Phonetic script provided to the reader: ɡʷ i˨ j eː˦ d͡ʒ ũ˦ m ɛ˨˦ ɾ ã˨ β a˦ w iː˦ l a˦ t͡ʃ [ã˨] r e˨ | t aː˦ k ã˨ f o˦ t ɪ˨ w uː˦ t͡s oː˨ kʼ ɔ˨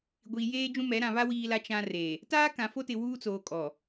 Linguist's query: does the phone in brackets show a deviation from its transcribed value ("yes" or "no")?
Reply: yes